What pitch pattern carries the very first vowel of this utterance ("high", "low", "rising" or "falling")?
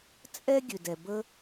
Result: high